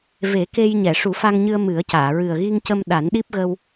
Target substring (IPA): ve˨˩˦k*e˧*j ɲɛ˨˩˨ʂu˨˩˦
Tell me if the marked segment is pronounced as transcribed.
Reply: yes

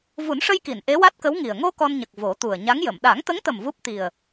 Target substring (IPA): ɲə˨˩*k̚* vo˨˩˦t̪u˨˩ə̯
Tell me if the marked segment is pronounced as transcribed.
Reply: yes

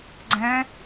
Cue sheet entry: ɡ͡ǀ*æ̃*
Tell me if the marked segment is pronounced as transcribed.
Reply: no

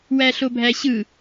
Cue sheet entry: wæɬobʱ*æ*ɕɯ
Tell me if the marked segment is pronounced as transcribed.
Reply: yes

